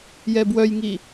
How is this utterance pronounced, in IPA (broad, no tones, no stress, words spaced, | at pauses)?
jɛbwœjŋi